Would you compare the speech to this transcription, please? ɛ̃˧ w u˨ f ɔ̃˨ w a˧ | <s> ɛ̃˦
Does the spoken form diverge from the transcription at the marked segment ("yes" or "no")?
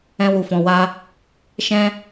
yes